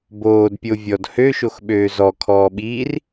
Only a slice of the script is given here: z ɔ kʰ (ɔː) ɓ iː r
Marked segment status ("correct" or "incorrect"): correct